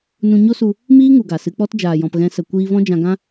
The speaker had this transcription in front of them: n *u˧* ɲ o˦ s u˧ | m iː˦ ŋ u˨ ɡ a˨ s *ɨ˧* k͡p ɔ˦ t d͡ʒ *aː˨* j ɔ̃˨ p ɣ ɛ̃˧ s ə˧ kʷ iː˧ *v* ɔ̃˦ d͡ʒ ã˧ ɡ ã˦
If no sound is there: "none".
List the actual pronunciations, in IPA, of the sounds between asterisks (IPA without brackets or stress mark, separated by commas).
ũ˧, ɨ˧, aː˨, v